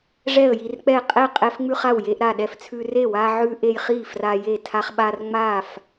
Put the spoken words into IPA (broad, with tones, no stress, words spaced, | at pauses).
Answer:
ʐɛ˥˨ə̯ji˦rk͡pɛ˥˨ qʼɛ˥˨qʼɛ˦fŋ͡mʉ˦χ a˥˨wje˦ʔ ɾa˥˨ɗɛ˥˨ft͡sʰʉ˦ re˥˨wa˦ʕʉ˦ ʔe˦jχi˥˨ fra˦je˥˨ tʰa˦χɓa˦r ŋ͡ma˥˨f